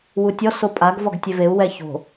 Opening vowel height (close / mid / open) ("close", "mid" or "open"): close